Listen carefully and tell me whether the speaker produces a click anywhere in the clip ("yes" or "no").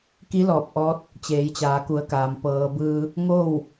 no